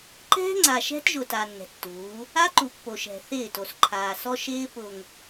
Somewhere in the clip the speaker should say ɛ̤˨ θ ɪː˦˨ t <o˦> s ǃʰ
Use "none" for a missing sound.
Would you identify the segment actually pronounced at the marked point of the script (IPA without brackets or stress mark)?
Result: o˨